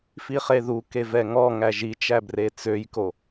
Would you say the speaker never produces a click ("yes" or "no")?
yes